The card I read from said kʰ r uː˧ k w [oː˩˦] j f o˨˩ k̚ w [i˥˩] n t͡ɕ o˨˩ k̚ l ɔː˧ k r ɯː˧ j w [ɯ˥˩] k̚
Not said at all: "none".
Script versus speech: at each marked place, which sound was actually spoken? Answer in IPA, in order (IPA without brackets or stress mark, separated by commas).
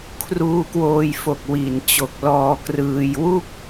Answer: oː˧, i˨˩, u˥˩